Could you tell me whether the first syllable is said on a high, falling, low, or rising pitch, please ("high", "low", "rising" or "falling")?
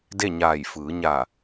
falling